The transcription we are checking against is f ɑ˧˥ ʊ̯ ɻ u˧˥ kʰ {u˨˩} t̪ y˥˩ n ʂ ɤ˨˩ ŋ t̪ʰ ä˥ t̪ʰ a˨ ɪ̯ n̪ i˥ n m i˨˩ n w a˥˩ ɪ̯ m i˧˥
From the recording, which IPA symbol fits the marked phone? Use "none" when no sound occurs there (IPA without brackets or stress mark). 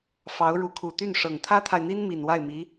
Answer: u˨˩